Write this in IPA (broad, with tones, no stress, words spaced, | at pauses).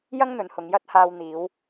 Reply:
jɐ˥ŋn̪ɵ˨˧nhʊ˨˧ŋ jɐ˥t̚haː˧w n̪iː˨˧w